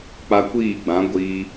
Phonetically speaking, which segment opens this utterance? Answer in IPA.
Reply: k͡p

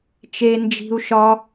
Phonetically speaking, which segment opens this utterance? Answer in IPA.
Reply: t͡ʃ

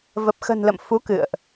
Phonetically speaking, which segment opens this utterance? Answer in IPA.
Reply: v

